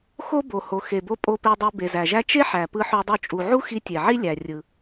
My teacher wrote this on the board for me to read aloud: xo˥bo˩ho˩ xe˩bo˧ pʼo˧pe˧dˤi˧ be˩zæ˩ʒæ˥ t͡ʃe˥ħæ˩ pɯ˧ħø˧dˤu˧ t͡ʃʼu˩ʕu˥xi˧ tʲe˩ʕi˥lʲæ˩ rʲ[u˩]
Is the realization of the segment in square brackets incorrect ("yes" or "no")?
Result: yes